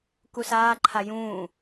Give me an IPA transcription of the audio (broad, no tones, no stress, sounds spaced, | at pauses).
k u s aː ǃʰ a j ũː